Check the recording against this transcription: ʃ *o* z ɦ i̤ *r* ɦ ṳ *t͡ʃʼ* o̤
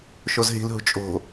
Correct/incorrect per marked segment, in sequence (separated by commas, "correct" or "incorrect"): correct, incorrect, correct